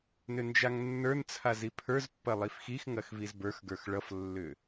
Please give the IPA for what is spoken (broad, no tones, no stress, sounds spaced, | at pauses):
n ʏ n d͡ʒ a ŋ nː ə˞ n t͡sʰ a z i pʰ ə˞ z pː ɐ lˠ i f x i x ŋ ɐ x v i z b ə˞ x ɡ ə˞ x ɭ ʌ f lː ʏ